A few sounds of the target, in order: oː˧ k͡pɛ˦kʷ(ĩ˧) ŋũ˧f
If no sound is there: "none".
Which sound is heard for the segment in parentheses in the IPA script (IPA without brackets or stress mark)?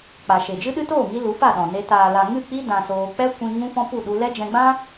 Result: ĩ˧